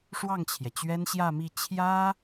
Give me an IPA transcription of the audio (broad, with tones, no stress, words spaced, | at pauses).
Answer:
ʂwɑ˥˩ŋt͡ɕʰjɛ˩ t͡ɕɥɛ˥nɕjä˥˧mi˥˩ t͡ɕʰjä˥